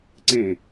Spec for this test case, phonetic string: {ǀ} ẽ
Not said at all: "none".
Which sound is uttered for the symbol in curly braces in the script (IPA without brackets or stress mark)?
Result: ǀ